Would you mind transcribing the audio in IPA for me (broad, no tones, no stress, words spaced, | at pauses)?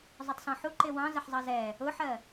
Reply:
zˤʊtˤsɔ̃ħu ǃɪwɑ̃ zəħzˤʌzɛ | ʊħɜ